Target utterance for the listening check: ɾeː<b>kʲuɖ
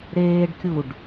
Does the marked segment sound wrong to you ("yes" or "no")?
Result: yes